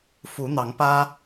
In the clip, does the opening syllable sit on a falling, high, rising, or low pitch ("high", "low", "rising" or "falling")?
rising